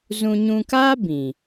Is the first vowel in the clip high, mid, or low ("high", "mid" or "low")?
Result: high